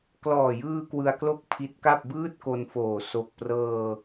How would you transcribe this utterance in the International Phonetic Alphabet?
klɔː˨˩jɯː˧ kwɯ˧a̯klo˥˩k̚ pʰi˦˥t̚ka˥˩p̚ bɯː˥˩t̚ko˧nfoː˨˩ so˨˩k̚prɤː˧

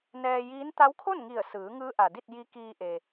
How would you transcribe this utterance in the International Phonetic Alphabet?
nɛː˧jiː˧˥n t̪a˧˥wkʰo˥˨nŋi˧˩ə̯sɯː˩˧ ŋɯː˧˥ʔa˩di˥˨t̚ ji˧˥kiː˧ʔe˩

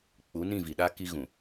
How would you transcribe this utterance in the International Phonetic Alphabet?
k͡pu˨˦nĩ˦˨vi˨ ɗa˦ ki˦ɣũ˨

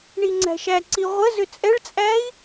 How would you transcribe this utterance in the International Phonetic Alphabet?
ɳiŋ͡ǀæ̤ʃæǀi ʁʷə zʏt͡sʼɛɭt͡sʼæi̯

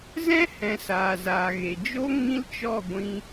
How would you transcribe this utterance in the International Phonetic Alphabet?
zɛ̃˦hɛ̃˨ saː˨ zaː˨ɣe˨d͡ʒo˦ ŋĩ˦lt͡ʃɔ˦˨ɡʷĩ˧

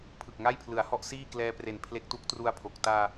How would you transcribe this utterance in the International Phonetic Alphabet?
pʰɯ˨˩k̚ŋa˥˩jpʰlɯ˩˦a̯hɔ˥˩ʔ siː˥˩klɛː˧pre˨˩n pʰle˦˥k̚tu˦˥k̚tru˧a̯pʰo˨˩k̚ taː˧

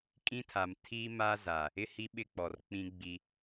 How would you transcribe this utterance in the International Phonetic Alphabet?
kʼĩ˦tʰa˨m tʰi˦ma˦za˨ | ɪ˦˨hi˦ ɓɪ˦k͡pɔ˨rk͡pĩ˦ ɡ͡bi˦

